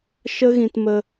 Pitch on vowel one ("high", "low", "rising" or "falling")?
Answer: high